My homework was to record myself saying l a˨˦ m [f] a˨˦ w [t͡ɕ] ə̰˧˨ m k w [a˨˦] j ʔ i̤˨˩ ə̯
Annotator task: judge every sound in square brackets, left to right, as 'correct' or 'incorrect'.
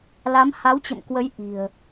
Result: incorrect, correct, incorrect

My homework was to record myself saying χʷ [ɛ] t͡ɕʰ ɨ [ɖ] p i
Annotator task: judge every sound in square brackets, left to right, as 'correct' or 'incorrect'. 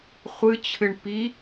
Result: incorrect, incorrect

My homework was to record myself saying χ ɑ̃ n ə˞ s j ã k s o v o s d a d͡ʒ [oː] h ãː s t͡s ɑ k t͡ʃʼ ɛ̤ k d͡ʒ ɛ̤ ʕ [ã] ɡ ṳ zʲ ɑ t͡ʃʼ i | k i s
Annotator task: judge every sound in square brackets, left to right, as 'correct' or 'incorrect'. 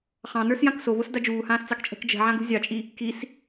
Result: incorrect, correct

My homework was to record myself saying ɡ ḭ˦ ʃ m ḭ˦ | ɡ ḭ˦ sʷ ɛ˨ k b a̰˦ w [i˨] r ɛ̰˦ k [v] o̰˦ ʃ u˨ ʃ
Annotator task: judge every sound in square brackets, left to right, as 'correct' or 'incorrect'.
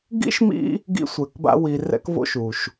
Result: correct, correct

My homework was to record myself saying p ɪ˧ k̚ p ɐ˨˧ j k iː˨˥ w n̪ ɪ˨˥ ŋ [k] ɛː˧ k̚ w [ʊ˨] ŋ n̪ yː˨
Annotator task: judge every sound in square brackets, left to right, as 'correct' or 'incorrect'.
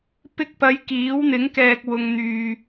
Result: correct, correct

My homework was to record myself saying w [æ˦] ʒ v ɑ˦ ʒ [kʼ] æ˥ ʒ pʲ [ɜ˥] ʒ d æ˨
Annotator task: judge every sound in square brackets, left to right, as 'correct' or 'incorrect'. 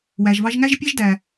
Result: incorrect, incorrect, incorrect

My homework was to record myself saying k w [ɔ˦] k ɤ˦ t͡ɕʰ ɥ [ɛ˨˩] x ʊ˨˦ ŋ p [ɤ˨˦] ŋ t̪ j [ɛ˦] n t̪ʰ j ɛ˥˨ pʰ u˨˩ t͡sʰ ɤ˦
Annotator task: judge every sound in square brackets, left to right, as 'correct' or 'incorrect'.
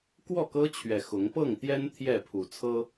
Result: incorrect, correct, incorrect, correct

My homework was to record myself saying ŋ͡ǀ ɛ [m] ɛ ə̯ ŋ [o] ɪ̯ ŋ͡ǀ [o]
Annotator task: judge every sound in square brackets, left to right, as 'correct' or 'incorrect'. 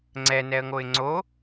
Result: incorrect, correct, correct

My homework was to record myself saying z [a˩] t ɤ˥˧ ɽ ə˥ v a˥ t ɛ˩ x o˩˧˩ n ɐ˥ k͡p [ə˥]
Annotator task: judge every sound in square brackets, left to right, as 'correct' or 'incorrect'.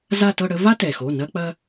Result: incorrect, incorrect

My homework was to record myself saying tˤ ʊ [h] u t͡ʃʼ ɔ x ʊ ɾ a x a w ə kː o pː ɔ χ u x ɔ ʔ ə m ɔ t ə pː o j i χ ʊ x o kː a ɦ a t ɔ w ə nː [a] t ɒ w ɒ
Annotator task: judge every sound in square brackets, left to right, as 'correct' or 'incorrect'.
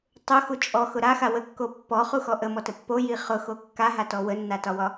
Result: incorrect, correct

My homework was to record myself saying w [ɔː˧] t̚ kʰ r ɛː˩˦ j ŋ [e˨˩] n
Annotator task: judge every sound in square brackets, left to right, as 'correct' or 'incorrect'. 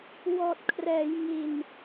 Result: incorrect, incorrect

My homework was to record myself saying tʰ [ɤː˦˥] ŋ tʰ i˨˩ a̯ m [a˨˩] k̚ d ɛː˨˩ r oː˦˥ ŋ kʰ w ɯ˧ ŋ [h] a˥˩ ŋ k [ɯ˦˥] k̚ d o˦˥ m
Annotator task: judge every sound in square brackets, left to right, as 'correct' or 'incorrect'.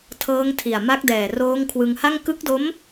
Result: correct, incorrect, correct, correct

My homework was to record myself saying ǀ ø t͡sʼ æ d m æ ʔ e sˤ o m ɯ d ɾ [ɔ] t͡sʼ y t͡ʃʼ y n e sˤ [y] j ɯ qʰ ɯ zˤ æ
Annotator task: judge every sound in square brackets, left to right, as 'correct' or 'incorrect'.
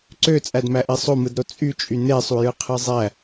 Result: incorrect, incorrect

